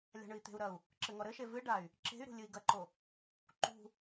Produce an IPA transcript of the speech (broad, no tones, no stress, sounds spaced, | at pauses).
lʲ a̤ ɳ ɨ i̯ t̪ e̤ u̯ ɾ ɐ u̯ | ǁ ɘ ŋ ɔ ɾ ɘ ʃ e v ɨ ɖ a y̯ | ǁ e̤ y̯ ɾ ṳ lʲ ɨ i̯ ɡ ɐ ǃ o | ǃ ṳ